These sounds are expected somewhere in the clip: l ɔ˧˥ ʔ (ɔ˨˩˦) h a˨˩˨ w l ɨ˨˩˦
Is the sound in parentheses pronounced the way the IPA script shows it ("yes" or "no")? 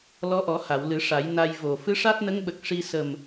yes